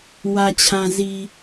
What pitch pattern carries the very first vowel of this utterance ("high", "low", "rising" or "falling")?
low